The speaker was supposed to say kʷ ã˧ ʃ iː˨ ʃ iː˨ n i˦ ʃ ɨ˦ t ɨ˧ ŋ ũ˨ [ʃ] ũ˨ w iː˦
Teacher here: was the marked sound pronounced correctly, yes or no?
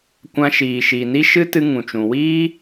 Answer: no